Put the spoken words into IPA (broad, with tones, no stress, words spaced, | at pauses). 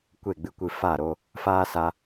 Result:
kʷe˦˨ɡ͡bɨ˧kʷɨ˧ fa˦˨ɾo˧ | faː˦sa˧